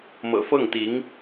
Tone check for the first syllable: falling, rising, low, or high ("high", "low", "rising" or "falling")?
low